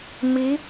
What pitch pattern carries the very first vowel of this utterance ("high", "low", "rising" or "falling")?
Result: rising